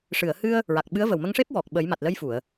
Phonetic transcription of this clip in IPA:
ʂɨ˨˩˨ə̯hɨ˧ə̯ | ɹa˨˩k̚ɓɨ˧˥ə̯və˨˩w mə˧ŋʂe˦˥p̚ wɔ˨˩k̚ɓə˨˩˦jma˨˩t̚ lə˧jfu˨˩˨ə̯

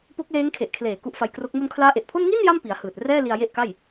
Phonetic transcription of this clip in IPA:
po˦˥k̚leː˦˥ŋ kʰe˨˩ʔkʰleː˨˩ ku˦˥ʔfa˧jkro˦˥k̚ mu˧nkʰlaː˦˥ʔe˨˩ʔpʰo˥˩n ŋi˥˩n ja˥˩mpi˩˦a̯hɯː˨˩t̚ rɛː˥˩li˧a̯ je˥˩ʔka˥˩j

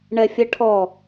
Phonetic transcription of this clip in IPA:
ɳɛfʲɛʈʰɔ

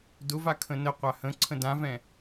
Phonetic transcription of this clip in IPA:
dʊva kʰə̃nəqʷa hə̃ ǀʰə̃dãvɛ̃

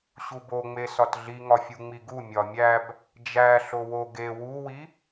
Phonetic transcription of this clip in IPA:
ɕuboŋ͡me sɒtɮiŋɒfʲu ŋ͡miɡu mʲɒmʲæb | d͡ʒæ ɬowo ɡe wuwi

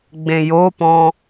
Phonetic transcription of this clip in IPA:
ɡ͡bẽjopɔ̃

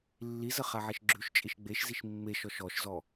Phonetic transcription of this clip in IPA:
lːizə χaʕeʃɡ͡ǁʉʃ t͡ʃʼiʃɡ͡beʃziʃ mːeʃɔʃ ɔʃzɔ

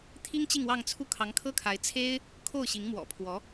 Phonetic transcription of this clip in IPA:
t̪ʰi˥ŋ t͡ɕi˥˧ŋwɑ˥˧ŋ t͡sʰu˥˩ kʰɑ˧˥ŋkʰɤ˥kʰa˧˥ɪ̯ t͡sʰe˥ɪ̯ | kʰo˥˩ʊ̯ɕi˧˥ŋ mwɔ̰˨˩pʰwɔ˧˥

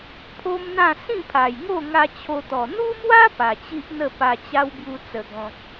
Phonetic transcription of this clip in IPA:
pʰo˦mn̪ã˥˧ sĩ˥˧pʰa˨˩jŋo˥˧ŋa˧ t͡ɕʰo˧t̪ɔ˨˩ n̪u˦mwa˦ pa˨˩t͡ɕi˦ʔn̪ə˥˧ pa˧t͡ɕa˦wbju˧ t͡sə˨˩ɡɔ̃˨k̚

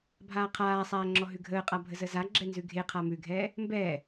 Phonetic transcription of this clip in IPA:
bʱaːqʰaːsˤaː ŋ͡ǁɔɦʉɡʱəːqʼa bʱəzəzaɡ͡ǁɛ nzʉɡʱeqʰa mʉɡʱɛː | mbɛː

